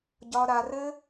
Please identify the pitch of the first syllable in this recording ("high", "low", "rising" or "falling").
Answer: high